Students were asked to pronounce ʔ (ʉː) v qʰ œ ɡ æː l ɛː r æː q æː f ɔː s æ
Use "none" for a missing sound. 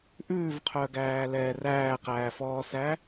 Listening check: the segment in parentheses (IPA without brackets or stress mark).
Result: ʉː